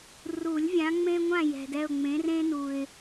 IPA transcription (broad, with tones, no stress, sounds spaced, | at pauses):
r u˨˩˦ lʲ vʲ ã˨˦ ŋ͡m ẽ˦ ŋʷ ã˦˨ j ɛ̤˨ d ɛ˦˨ ʊ̯ ŋ͡m ẽ˨˦ r ẽ˦ n u˨ ɪ̯